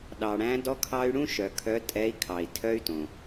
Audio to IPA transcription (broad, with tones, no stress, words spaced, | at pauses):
ɗɑ˩ɽæ̃˨˦ dɔ˦kʰɑ˦y̯ ɽũ˦ʃœ˩ kʰœ˨˦tʼɛ˨˦i̯kʰɑ˩i̯ tʰœ˦y̯tõ˩